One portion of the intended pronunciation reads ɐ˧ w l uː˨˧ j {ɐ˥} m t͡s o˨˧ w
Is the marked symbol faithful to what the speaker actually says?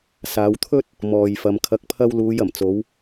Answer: no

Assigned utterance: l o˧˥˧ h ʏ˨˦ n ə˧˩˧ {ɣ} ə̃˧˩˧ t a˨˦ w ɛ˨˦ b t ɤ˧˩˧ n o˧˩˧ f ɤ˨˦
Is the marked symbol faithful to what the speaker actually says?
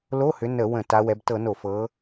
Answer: no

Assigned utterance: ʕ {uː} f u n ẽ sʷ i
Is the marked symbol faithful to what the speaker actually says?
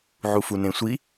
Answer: no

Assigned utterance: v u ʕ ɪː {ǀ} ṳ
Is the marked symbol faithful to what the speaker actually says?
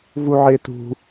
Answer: no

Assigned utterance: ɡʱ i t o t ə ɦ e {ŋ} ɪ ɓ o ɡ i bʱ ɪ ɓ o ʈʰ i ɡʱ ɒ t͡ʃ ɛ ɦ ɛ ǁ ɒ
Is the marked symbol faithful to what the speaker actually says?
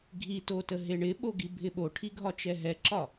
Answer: no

